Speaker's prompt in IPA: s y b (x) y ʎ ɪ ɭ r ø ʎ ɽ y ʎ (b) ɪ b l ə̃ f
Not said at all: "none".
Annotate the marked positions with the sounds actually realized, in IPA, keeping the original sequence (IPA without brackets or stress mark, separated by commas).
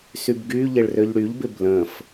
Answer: ɡ, b